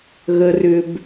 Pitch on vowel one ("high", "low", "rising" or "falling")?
low